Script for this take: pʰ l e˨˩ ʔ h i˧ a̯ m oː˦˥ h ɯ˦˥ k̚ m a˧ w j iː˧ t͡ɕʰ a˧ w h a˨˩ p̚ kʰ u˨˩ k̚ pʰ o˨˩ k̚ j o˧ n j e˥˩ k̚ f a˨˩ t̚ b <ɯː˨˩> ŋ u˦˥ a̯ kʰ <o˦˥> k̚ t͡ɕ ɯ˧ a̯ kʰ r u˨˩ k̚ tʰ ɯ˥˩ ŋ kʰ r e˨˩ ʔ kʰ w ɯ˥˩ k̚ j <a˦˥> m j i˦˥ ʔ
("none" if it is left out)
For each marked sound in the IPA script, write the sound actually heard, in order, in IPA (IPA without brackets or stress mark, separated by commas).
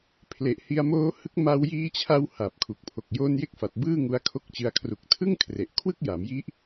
ɯː˥˩, o˥˩, a˩˦